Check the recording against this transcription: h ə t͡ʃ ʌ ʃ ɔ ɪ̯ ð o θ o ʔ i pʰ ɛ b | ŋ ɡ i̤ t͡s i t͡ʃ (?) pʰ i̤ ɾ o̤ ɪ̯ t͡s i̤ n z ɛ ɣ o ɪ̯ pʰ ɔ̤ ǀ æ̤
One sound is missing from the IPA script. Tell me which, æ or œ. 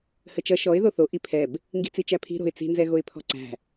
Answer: æ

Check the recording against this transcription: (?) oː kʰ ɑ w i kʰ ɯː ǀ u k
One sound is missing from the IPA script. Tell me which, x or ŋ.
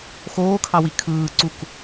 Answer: x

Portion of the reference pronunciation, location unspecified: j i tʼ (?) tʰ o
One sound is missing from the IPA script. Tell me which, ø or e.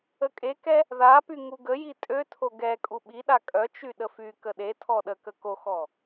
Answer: ø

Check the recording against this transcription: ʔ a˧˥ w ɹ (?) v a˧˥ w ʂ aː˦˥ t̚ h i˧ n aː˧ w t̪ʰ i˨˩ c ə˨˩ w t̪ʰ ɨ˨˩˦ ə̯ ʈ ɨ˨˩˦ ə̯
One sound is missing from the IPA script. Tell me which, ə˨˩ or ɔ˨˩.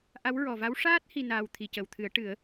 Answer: ɔ˨˩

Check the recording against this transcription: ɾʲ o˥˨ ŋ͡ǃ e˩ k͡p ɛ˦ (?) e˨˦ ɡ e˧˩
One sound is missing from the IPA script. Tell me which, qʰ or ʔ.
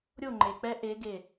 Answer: ʔ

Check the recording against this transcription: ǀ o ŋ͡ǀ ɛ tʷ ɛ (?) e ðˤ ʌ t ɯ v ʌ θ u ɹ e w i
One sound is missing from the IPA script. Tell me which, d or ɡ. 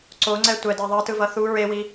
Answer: d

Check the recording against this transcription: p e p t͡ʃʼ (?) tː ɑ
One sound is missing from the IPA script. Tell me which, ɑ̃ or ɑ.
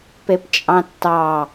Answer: ɑ̃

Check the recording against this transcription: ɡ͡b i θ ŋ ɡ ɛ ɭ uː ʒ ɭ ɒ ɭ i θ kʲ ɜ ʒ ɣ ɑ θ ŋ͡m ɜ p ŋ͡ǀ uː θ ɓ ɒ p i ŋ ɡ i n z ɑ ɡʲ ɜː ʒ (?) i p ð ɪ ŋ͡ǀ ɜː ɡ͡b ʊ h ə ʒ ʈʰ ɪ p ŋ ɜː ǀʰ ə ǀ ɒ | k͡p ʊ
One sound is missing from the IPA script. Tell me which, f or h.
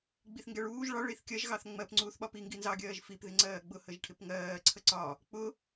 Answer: f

